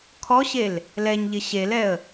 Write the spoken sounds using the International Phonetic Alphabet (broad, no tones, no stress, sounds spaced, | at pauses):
kʰ ɔ ɕ e l | l ɛ ɲ ʎ ɪ ɕ e l ɛ ə̯